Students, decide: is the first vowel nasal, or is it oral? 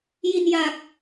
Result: oral